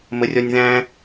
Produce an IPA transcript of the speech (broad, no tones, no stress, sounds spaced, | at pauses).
m ə rʲ ɔ nʲ ð æ̃